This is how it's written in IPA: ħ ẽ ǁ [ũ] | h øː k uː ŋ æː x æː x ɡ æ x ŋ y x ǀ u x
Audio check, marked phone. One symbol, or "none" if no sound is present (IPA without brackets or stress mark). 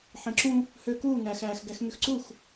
ũ